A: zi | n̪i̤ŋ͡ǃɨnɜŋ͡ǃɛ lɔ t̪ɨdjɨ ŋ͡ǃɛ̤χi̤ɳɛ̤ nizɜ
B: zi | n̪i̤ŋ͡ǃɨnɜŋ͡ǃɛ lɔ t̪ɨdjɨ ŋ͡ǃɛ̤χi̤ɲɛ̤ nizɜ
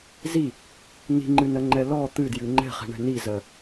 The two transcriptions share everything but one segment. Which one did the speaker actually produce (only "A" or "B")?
A